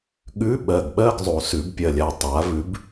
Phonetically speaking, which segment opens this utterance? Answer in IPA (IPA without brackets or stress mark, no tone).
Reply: ɠ